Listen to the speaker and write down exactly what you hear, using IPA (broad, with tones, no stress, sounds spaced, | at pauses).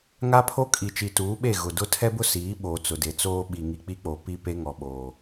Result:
ŋ a˦ pʰ o˦ kʼ i˨ t͡ʃ i˨ t uː˨˦ ɓ e˦˨ ɣ ʊ˨ d ʊ˦ tʰ ɛ˦ b ʊ˦ s iː˨˦ ɓ o˨ t͡s ʊ˨ d e˨ t͡s oː˦ ɓ i˨ ŋ i˨ k͡p i˦ k͡p o˨ p i˦ p e˦ ŋ ɔ˨ ɓ oː˨